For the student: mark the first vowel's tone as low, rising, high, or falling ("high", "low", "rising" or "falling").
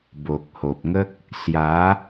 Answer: low